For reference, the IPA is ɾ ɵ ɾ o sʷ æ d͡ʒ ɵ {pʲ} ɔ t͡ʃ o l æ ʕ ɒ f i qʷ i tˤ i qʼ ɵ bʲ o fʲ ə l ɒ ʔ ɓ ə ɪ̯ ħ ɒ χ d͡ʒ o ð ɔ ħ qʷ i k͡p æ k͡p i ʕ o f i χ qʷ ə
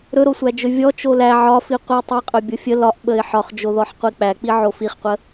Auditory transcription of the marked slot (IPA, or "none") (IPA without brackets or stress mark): vʲ